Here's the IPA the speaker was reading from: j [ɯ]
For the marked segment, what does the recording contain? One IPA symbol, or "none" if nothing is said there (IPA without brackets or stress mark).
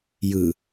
ɯ